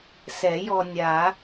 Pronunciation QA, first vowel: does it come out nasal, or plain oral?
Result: oral